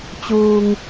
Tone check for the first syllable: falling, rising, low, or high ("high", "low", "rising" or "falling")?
low